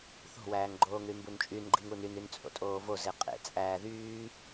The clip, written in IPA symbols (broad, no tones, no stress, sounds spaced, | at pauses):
θ o̤ w æː ŋ ɡ͡ǃ oː ŋ ɾ y m b u n t͡ʃʼ y n ɡ͡ǃ i ŋ u n y n y n t͡sʼ o̰ tʼ oː v o z e qʼ ḛ t͡sʼ æː ð yː